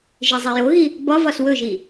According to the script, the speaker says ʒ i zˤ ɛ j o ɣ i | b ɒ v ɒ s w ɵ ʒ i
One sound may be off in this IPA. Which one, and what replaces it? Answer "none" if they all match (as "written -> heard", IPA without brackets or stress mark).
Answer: none